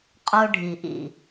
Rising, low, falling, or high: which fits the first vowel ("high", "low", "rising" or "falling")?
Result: high